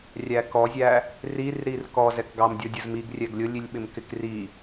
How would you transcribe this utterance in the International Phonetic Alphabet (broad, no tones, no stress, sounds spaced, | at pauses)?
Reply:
rʲ æ k ɔ zʲ æ | r i r ɾ i r k ɔ z ɛ k ɡ ɑ m dʲ ɔ dʲ ʊ z m i ɡ rʲ ɛ ɡ lʲ ʊ lʲ i lʲ ɓ ɪ m k ɪ k r i